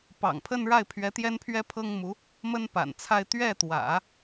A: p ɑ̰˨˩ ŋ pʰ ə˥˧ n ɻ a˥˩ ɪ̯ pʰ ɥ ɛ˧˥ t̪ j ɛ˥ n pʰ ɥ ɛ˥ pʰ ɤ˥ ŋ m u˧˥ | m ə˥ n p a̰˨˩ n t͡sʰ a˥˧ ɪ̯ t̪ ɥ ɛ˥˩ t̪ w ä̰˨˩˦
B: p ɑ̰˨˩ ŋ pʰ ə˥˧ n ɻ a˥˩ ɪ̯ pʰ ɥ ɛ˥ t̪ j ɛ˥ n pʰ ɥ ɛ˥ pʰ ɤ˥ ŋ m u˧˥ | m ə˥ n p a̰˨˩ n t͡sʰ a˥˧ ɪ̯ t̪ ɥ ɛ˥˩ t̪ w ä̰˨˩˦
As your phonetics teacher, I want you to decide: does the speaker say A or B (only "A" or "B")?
A